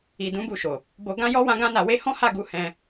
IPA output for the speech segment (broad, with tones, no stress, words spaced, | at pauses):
i˨dũ˨˦bu˧ʃo˨ | bo˧ɡã˦jɔ˦ wã˧ɡã˧na˨we˧ hɔ̃˦ha˦˨ɡu˨˦ hɛ̃˧